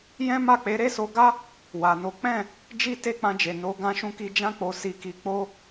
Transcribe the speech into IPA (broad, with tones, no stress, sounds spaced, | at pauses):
j ɛ̃˦ m a˦˨ k͡p e˨˦ ɾ e˦ s o˧ ɡ a˦ | w a˨ n o˨˦ k͡p ɛ̃˦˨ | d͡ʒ i˦ t e˦ k͡p ã˧ d͡ʒ e˨ n o˨˦ ɡ ã˦ ʃ ũ˦ k i˦ d͡ʒ ã˦ k͡p o˧ s i˧ k i˧ k͡p o˦